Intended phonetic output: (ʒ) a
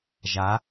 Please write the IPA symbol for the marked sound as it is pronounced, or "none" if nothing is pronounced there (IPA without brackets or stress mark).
ʒ